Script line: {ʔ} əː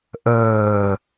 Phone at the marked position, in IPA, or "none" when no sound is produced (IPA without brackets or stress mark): ʔ